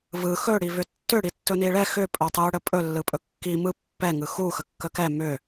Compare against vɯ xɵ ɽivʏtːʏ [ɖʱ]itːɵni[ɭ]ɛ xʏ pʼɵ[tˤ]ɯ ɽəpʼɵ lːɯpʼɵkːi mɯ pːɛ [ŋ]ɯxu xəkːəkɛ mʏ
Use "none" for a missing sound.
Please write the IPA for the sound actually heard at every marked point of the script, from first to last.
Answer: ɽ, ɭ, tˤ, ŋ

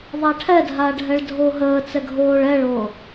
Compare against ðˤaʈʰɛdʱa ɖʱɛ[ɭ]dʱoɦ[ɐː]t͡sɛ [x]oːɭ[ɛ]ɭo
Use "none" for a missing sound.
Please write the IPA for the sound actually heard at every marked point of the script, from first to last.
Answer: ɭ, əː, ɡʱ, ɛ

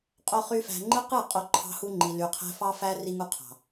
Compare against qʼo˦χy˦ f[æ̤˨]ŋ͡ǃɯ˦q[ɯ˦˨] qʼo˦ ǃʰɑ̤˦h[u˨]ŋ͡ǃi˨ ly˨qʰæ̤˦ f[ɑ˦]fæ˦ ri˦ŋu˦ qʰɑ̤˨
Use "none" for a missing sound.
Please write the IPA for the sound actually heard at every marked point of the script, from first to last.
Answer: æ̤˨, ɯ˦˨, u˦, ɑ˦

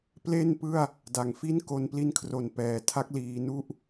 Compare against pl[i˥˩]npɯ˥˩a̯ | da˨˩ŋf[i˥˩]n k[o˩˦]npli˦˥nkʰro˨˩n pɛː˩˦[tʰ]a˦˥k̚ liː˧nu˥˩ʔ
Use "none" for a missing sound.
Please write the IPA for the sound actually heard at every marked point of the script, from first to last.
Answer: e˥˩, i˥˩, o˧, tʰ

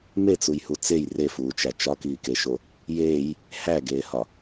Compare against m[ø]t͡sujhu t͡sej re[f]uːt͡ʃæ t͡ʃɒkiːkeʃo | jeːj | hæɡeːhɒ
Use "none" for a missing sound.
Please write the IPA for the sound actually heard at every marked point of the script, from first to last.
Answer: e, f

